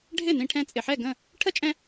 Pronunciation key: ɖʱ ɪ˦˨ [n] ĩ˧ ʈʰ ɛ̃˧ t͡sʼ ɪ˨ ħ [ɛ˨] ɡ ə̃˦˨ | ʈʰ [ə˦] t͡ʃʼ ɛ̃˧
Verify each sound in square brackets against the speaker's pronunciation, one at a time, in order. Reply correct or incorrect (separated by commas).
correct, incorrect, correct